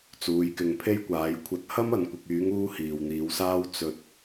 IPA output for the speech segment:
t͡suː˨˧jkɪ˨ŋpʰe˥jkʷaː˨˥j kʷʰɐ˨˥t̚ hɐ˥m ɐ˨nkʷɪ˨k̚yː˨˥ŋ uː˥hiː˨wn̪iː˨˧wsaː˥w t͡sɵ˨t̚

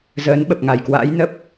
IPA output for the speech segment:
zəː˨˦nɓə˨˩p̚ŋa˨˩jkwa̰ː˧˥j nə˦˥p̚

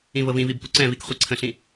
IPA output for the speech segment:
ĩvɤvĩvib puǀɛ̃vik χʷiǀʰə̃ɬĩ

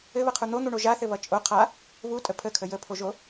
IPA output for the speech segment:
ɘβʌqʰu n̪on̪uɳo ʒaθɘβʌ t͡ʃʼo qʰa | βutʼə pʰəkʰə jəpʰoʒo

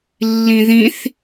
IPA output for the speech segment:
lːĩðĩθ

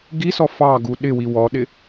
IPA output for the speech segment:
ɡisɔ fɑɡu ɗɪwi wɔɗɪ

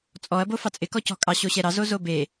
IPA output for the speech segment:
t͡sʼɔɐ̯ bofɑt͡sʼɪ kɔcɔ̤kʼɑ ɕoɕɛɾɑ zozobe

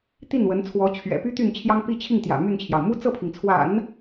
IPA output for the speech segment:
t̪i˥˩nwə˧˥nt͡sʰwɔ˧˥ t͡ɕʰɥɛ̰˨˩py˥ t̪y˥˩n t͡ɕʰjɑ˥ŋpi˥˧t͡ɕʰi˥˩ŋ t̪jä̰˨˩ my˥˩nt͡ɕʰjɑ˩ʊ̯ mu˥t͡sɤ˥˩pʰi˩ŋt͡sʰwa̰˨˩˦n

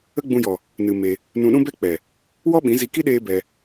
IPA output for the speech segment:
ə˦ɡ͡bũ˧jɔ˨ | nɨ˧me˧ | nũ˧ɗũ˦bɛ˦k͡pɛ˨ | wɔ˦ɓĩ˨˦zi˧ki˦ ɗeː˦bɛ˧

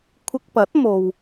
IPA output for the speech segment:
kʷʰɪ˧k̚pɐ˨˥t̚ mo˨w

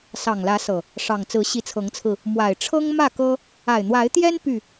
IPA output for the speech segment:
sɑ˨˩ŋlä˨˦sɤ˨˩ | ʂɑ˨˩ŋ t͡sɹ̩˨˦ɕi˨˦t͡sʰɤ˨˦ŋt͡sʰɹ̩˧ | mwa˨˩ɪ̯ʈ͡ʂʰɤ˦ŋ mä˥˨kɤ˦ | a˨˩ɪ̯n̪wa˨˦ɪ̯t̪jɛ˦n py˥˨

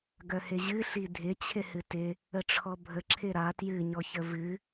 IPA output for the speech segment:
ɡœhɪʑɨ ɬidʱɪ t͡ɕʰɪhɨtɪ | əʈ͡ʂʰɔbʱə ǁʰɪɾa tjɨ ɲɔçəvɨ

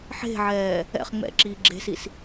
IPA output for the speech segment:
ħe̤ʕɛː | ɛ̰χ ŋ͡mɛ̰ǁiː ɡ͡ǁe̤sis

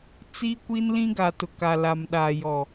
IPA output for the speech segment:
t͡si˦kʷi˦nlĩ˦ɡa˨ tʊ˨ka˨la˨mɗaː˨ jɔ˨

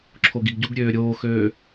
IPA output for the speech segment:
ǁʰoɡiɡɟuɡ ɾʲøːɾʲoːxøː

